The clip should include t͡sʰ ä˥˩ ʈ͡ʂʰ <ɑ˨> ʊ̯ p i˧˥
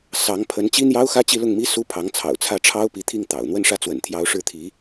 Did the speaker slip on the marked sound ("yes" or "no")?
yes